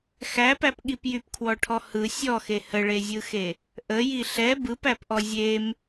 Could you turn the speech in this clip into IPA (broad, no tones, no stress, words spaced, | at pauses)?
xæpæpɠip jypkʰwɔʈʰɔ hɯ sʲɔxe həɭezʲɯxe | ʔəji ɬɛ bɯpæpʔɔ zʲem